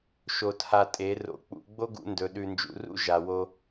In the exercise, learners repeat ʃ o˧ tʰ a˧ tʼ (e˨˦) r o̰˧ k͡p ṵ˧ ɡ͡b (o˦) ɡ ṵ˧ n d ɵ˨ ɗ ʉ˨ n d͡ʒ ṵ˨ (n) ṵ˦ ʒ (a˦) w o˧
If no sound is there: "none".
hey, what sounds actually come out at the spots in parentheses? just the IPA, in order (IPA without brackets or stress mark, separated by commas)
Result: e˨˦, o˦, r, a˨